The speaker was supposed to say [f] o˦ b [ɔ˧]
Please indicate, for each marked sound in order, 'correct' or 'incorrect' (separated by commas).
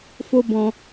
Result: correct, incorrect